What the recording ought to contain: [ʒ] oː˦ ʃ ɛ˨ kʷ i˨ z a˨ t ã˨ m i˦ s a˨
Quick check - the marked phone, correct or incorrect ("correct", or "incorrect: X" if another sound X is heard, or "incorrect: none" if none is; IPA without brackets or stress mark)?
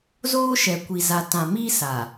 incorrect: z